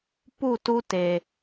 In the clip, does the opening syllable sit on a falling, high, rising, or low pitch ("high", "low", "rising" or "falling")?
falling